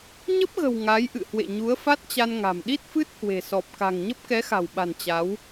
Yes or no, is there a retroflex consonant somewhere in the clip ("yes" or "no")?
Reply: no